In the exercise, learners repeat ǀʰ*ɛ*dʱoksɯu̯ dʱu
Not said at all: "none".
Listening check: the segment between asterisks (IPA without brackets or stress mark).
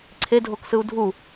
e